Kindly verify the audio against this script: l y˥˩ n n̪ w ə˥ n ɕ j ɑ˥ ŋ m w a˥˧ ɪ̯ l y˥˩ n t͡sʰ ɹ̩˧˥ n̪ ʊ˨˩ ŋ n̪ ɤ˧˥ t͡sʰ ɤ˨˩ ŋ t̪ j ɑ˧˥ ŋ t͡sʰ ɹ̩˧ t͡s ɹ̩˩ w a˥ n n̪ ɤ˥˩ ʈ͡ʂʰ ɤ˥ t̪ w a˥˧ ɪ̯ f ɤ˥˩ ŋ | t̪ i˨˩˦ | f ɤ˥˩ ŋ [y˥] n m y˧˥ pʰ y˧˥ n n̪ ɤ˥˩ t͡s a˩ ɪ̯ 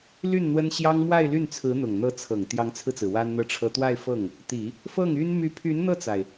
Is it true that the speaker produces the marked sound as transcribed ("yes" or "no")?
yes